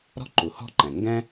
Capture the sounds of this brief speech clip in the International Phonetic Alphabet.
ɾ ɔ̤˥ ǃ u˩ h ɔ̤˥ ǃ ɛ̃˩ ŋ ɡ ɛ̃˥

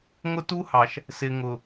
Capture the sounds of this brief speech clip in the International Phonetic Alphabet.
ŋ ʊ˦ t u˦ h ɑ˨ ʃ | s ɪ˨ ŋ ʊ˨

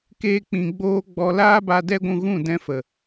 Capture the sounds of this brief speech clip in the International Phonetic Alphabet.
k eː˦ k͡p ĩ˧ ɡ͡b oː˦ ɡ͡b ɔ˧ l aː˦ b a˧ d ɛ˦ ɡʷ ũ˧ ɣ ũ˦˨ d ɛ̃˧ f ə˨

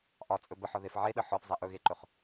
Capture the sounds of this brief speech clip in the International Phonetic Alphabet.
ʔ ɒ t͡sʼ ɵ b ə ħ ɒ ð e f ʕ e ɗ ə ħ ɒ θ zˤ ɛ ʔ ɵ ɣ e ǃ ɵ χ

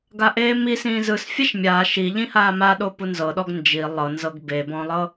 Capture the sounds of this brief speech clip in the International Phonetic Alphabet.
ɡ a ʔ eː m i s ĩː z ɯ s fʲ ɛ ʃ mʲ aː ʃ i ʎ ĩ h aː m a ɗ o p u n z ɤ ɗ ɔ ɡ n d͡ʒ i lˠ ɤ n z ɤ ɡ b e b ɔ̃ lˠ ɤ

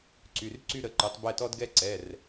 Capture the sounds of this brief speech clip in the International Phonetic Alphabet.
ǀ y˩˧˩ r ǀ y˦ ɾ ə˩˧˩ ǃ y˩˧ tˤ b ɛ˧˩ t ɔ˦ d ɡ ɛ˦ ǀ ɛ˩˧˩ r

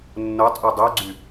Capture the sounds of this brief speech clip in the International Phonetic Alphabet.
nː o tˤ ʔ u dˤ ø ɡ͡ǀ y

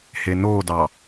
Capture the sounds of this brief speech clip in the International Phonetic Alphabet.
h e n oː d ɑ

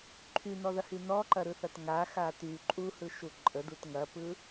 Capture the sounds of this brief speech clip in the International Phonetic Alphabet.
ǃʰ y n ɔ ð ɐ h y n ɔ ǃ ɐ ɾ ɯ θ ɐ t ŋ a x a t y ǃʼ u h ɯ ʃ u ǃʼ ə d u t ŋ ɐ p ɯ

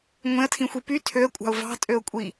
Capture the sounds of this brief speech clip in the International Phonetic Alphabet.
ŋʷ ẽ ə̯ tʰ ĩ xʷ i p y tʰ ø ə̯ kʷʼ ɑ̤ ʊ̯ v ɑ̤ tʼ ø ʊ̯ kʷʼ i

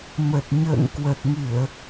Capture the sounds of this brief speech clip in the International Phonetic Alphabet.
m ə˨˩ t̚ ɲ ə̰ː˧˨ ŋ k w ə˨˩ t̚ ŋ ɨ˧˩˨ ə̯

